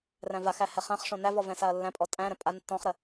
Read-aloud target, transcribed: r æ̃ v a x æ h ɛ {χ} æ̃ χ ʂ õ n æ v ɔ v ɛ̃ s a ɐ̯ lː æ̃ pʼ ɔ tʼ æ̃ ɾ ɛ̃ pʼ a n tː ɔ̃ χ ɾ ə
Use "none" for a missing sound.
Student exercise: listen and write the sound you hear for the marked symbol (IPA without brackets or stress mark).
χ